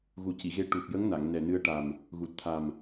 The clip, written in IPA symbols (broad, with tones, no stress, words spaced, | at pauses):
ɣu˨˩ci˨˩˨ɣe˧ ʈu˨˩p̚jə˧˥ŋna˨˩˨ŋ nɛ˨˩nɨ˧ə̯ʈa˨˩m | ɣu˨˩t̚t̪ʰa˨˩m